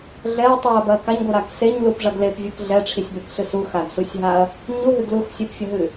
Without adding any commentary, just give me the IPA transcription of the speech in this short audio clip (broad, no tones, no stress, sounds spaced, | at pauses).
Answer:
ɮ ɛ ɐ̯ tˤ u ɐ̯ b ɐ k a ɲ ɡʷ ɨ ɾ a k s e ɲ l u p ʐ ɐ ɡ l e p vʲ ɨ k ɮ ɛ ʈ͡ʂʰ i sʲ b e k ɬ ɨ s u x a ɡ s u sʲ ɦ a ɐ̯ | ɲ u ɦ ɨ ɡ l u x sʲ ɨ p fʲ ɐ ɦ ɨ